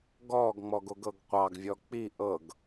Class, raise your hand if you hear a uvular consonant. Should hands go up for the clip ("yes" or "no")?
yes